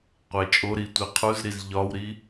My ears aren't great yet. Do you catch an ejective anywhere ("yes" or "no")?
yes